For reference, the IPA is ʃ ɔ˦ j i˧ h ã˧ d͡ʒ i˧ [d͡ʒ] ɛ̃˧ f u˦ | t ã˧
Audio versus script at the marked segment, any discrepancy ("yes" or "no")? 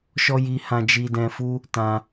yes